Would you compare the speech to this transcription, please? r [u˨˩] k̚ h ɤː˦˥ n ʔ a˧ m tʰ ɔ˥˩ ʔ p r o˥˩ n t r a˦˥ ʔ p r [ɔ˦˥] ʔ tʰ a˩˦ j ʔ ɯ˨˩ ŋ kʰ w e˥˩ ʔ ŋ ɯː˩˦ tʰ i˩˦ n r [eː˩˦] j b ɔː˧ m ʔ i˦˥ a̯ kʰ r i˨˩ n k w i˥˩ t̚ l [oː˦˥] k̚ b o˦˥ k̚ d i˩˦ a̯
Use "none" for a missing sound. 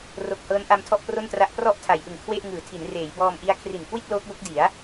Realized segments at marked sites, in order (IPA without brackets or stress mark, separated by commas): o˨˩, ɔ˥˩, eː˩˦, oː˦˥